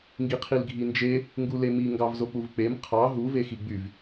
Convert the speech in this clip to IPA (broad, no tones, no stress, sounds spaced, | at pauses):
ŋ ɡ i qʰ i l ɡʱ i n d͡ʒ e | ŋ ɡ u l e m i ŋ ɡ ɑ v z o k͡p u v k͡p e m qʰ ɑ ɦ u v e x i ɡ͡b y v